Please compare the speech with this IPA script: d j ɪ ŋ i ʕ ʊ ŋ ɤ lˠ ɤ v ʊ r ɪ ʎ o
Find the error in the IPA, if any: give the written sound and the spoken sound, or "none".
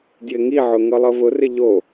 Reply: none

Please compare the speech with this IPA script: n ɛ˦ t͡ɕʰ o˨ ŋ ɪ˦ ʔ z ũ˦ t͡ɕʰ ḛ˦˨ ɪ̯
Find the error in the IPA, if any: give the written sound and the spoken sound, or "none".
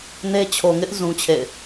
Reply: ɛ˦ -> e˦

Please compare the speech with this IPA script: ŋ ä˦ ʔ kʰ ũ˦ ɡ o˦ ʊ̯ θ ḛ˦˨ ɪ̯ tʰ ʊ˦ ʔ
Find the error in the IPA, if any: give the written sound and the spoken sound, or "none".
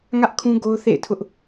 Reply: none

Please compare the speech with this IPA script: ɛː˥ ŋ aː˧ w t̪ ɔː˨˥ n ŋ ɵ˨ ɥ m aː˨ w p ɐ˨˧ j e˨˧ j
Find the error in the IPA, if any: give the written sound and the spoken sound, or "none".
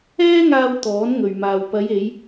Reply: none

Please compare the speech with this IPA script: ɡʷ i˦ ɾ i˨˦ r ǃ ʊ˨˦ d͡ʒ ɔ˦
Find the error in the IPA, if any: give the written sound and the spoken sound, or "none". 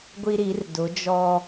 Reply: ǃ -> d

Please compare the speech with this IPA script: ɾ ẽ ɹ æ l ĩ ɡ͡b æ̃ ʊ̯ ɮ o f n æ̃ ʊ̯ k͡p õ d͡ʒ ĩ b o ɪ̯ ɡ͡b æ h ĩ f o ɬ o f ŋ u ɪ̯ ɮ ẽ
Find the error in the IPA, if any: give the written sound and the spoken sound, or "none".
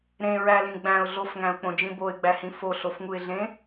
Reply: n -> ŋ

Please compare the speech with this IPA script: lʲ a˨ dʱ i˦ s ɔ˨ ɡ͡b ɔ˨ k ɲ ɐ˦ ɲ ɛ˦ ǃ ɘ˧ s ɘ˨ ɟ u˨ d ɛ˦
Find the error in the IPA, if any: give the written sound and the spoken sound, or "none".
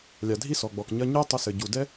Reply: ǃ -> tˤ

